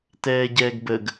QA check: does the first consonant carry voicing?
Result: no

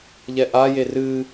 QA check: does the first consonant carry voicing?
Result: yes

